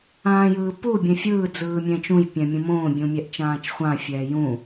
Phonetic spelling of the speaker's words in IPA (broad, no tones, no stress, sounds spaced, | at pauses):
ãː j ɯː p u bʲ ɛ̃ fʲ ɯː d͡z ɯː mʲ ɛ̃ t͡ʃ ũ j pʲ ɛ̃ mʲ ũ m õː bʲ ũ mʲ ɛ ʔ t͡ʃ ãː t͡ʃ χʷ ã fʲ ɛː j ũ